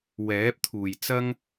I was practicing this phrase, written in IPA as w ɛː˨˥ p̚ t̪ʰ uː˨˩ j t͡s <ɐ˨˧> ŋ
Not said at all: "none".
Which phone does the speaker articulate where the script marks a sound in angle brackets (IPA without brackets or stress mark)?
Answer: ɐ˥